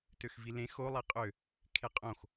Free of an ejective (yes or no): no